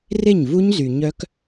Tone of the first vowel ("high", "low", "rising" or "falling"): falling